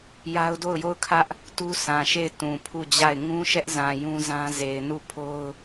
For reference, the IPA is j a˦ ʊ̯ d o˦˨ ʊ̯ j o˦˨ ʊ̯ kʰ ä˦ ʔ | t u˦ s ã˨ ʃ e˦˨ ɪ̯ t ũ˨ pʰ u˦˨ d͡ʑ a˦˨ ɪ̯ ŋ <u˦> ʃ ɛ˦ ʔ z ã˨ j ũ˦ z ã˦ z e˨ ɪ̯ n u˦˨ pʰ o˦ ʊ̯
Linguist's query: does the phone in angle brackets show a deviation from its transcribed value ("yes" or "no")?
yes